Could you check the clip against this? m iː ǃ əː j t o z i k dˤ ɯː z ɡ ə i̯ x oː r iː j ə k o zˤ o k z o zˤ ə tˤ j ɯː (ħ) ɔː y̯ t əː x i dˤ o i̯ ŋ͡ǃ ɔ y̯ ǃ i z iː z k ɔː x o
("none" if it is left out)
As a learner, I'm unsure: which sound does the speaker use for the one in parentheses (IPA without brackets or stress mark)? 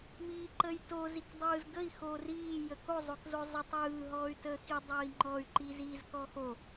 ɦ